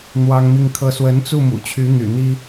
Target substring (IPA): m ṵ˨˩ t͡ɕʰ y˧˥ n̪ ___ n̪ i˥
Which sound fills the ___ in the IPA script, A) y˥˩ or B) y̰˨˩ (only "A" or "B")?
B